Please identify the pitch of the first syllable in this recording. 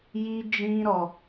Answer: high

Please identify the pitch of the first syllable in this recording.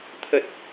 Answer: low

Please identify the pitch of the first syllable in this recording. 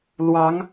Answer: rising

